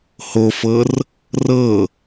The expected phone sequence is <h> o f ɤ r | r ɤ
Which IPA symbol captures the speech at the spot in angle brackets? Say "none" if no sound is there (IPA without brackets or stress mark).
h